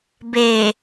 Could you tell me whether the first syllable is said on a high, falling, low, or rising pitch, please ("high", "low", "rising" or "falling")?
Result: low